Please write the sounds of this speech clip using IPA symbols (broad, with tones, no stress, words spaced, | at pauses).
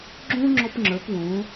ɡ͡ǁõ˥ ŋ͡ǁɔ˥pŋ͡ǁə˞˩˥pwõː˩˥